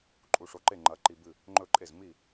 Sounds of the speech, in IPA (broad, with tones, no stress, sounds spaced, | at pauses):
ǃʼ u˧˩ ʂ o˧˩ ǃ e˥˩ ŋ͡ǃ ɐ˧˥ ǃ i˧ b ɨ˥˩ | ŋ͡ǃ ɵ˥˩ ǃʼ e˥˩ z m i˥˩